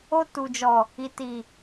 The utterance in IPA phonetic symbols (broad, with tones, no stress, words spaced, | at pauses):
o˧tu˨d͡ʒɔ˨ | i˨ti˨